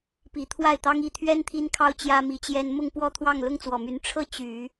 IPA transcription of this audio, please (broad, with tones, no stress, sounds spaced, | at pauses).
p i˨˩ t̪ʰ w a˥˩ ɪ̯ t̪ ɑ˥ ŋ i˥˩ t̪ʰ ɥ ɛ˥ n t̪ʰ i˥ n kʰ ɑ˥ ʊ̯ t͡ɕ j ä˥ m i˧˥ t͡ɕ j ɛ˥ n m ʊ˥˧ ŋ p w ɔ˥˧ t̪ʰ w ɑ˥˩ ŋ l ʊ˥ ŋ t͡s w ɔ˨˩ m y˧˥ n ʈ͡ʂʰ ɤ˥ t͡ɕ y˨˩˦